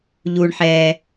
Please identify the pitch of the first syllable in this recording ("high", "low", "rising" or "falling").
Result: low